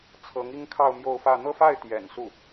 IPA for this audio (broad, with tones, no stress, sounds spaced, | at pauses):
t͡sʰ ɤ˧˥ ŋ i˥ ŋ kʰ ɑ˥˧ ʊ̯ m j o˥˧ ʊ̯ f ä˥˧ n̪ ɤ˥˧ f a˥˩ ɪ̯ t̪ j ɛ̰˨˩ n s u˥˩